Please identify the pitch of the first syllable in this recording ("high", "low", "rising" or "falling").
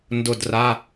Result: falling